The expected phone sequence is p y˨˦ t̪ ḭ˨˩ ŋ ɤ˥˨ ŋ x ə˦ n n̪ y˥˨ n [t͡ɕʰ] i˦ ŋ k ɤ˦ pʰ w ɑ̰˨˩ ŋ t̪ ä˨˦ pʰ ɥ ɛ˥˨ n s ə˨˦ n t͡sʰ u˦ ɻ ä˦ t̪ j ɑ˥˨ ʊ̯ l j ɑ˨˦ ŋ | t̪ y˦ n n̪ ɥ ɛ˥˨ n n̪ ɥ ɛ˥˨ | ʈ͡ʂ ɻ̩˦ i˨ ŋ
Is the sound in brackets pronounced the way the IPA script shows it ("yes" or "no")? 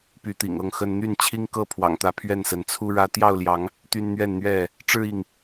yes